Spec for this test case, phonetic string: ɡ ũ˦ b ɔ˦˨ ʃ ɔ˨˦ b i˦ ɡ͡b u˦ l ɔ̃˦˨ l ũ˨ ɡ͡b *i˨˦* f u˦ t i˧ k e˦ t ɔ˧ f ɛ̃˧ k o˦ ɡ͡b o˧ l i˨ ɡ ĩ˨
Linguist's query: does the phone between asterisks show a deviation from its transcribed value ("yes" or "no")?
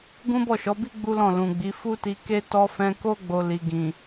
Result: no